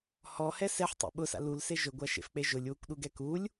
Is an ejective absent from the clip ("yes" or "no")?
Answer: yes